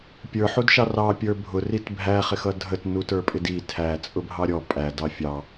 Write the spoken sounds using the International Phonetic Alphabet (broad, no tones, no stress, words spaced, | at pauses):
pʲə˞ ħudʃɑrɑ pʲə˞bʱʊ ritbʱæ χɪxʌdʱət nutə˞pʼɪdi tʰæ t͡sʼʊbʱɑɾʲɔ pʼæ dɑfʲɑ